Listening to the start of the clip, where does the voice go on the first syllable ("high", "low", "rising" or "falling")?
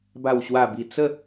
low